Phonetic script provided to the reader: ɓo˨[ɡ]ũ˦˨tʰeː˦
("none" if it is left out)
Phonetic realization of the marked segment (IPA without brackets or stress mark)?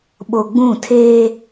ɡ͡b